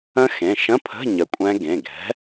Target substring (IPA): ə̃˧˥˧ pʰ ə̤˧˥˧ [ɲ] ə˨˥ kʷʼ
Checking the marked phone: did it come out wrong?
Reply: no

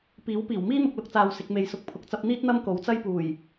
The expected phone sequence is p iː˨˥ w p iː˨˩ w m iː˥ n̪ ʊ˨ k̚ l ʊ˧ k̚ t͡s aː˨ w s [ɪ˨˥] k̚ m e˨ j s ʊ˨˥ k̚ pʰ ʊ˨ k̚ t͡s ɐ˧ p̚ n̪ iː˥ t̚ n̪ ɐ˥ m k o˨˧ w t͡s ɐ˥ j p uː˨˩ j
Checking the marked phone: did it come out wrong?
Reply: yes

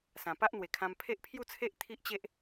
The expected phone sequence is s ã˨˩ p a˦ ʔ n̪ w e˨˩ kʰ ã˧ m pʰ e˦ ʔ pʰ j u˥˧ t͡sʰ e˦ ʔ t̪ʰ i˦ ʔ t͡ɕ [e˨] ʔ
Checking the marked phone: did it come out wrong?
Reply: yes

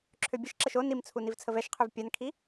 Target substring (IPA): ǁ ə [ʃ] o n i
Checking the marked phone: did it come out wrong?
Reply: no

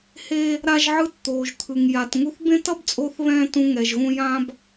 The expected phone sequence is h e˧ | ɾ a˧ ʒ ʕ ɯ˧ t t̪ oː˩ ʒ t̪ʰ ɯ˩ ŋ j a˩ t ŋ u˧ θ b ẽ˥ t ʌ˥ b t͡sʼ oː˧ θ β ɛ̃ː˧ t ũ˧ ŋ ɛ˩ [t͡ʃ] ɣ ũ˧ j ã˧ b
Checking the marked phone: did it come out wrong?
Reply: yes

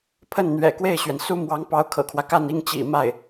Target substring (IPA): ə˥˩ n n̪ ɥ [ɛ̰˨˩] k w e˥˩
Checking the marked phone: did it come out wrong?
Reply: no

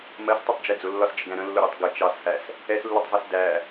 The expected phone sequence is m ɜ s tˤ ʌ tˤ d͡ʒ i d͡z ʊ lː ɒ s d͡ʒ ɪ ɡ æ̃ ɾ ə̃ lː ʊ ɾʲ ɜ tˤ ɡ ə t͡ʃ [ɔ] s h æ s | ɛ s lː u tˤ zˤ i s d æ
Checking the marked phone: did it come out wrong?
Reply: yes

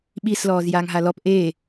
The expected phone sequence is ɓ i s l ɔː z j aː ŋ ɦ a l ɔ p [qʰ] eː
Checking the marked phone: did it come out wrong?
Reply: yes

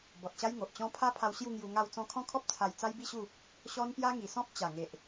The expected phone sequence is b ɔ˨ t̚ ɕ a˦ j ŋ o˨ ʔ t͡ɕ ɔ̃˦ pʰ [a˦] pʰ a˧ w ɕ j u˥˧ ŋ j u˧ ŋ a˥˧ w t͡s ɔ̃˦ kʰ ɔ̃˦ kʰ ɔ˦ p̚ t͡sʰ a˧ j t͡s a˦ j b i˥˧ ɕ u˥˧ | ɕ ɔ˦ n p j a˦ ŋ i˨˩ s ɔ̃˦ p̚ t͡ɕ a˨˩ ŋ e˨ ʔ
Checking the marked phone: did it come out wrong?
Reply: no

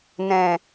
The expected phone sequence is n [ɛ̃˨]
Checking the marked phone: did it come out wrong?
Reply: no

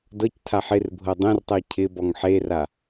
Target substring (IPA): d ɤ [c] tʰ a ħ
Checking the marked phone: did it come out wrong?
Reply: no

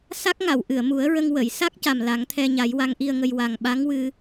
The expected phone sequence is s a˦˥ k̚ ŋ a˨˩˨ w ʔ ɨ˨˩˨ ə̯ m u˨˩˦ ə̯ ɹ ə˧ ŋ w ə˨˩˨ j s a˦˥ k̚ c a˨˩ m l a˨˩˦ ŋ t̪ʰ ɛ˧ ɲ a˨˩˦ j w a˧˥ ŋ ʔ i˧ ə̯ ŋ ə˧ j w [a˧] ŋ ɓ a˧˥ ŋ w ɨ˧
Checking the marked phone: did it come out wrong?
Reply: yes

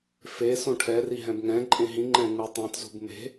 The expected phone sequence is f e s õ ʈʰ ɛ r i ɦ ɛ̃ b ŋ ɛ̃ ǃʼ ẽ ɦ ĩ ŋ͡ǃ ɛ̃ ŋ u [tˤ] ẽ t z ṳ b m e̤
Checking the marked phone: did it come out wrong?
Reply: no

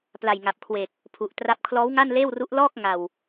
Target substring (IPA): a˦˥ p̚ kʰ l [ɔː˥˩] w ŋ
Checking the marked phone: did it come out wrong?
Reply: yes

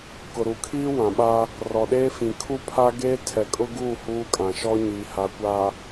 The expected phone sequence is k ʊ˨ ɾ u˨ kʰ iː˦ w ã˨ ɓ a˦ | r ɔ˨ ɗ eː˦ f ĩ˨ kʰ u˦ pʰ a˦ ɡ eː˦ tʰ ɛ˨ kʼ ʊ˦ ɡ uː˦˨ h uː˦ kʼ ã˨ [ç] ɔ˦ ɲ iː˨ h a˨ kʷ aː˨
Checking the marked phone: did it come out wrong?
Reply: yes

